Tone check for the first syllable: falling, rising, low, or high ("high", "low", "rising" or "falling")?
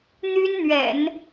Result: high